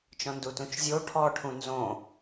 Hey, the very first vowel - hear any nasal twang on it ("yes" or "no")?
yes